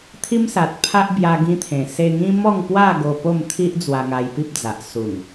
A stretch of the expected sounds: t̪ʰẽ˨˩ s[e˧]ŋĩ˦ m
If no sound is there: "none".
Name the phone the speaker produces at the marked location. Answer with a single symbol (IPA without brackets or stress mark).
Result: e˧